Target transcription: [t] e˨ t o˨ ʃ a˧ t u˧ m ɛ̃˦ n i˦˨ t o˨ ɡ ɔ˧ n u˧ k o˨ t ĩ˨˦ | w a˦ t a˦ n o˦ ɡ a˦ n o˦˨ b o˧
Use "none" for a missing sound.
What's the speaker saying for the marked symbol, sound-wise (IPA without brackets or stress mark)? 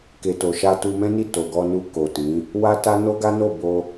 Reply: k